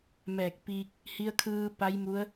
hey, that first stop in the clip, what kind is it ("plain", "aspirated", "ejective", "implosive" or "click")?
plain